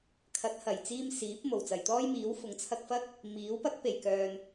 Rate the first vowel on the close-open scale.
open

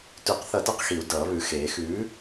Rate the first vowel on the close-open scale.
close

